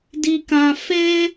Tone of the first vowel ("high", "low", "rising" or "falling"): high